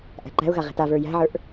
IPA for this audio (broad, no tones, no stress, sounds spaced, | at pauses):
ʔ æ̤ ǃ æ̤ ʊ̯ ɣ a ʁ e̤ t a v ə˞ j æ̤ ʕ ə˞ ʔ